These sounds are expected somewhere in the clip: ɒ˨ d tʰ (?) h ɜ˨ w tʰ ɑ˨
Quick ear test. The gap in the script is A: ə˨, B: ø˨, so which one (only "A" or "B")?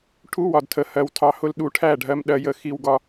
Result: A